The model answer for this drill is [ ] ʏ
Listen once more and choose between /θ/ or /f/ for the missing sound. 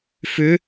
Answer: f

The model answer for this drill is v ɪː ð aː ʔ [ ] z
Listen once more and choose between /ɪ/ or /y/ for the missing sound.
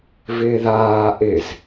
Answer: ɪ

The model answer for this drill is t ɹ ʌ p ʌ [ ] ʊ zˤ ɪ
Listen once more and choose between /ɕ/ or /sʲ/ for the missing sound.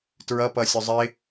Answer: sʲ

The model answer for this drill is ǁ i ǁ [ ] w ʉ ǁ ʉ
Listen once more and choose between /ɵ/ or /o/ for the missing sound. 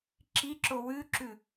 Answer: o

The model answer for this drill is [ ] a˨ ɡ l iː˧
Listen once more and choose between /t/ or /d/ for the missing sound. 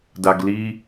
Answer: d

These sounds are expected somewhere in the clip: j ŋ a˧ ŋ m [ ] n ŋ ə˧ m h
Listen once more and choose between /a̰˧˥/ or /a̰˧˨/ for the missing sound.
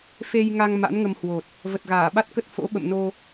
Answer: a̰˧˥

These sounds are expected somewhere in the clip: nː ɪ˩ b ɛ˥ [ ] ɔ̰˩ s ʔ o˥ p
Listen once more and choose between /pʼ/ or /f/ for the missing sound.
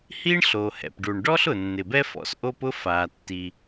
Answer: f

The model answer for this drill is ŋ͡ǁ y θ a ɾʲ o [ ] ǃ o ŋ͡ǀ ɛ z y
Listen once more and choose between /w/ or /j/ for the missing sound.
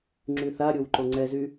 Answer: w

